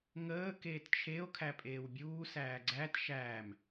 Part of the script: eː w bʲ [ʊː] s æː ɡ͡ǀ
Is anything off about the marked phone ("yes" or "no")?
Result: yes